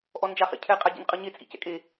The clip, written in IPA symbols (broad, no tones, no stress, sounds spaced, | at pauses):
ʔ ɔ n d͡ʒ a χ ḛ cʰ ɛ qʼ a ɟ ḭ n qʼ ɯ ɲ e t͡sʼ ḭ c ɛ̰ kʼ e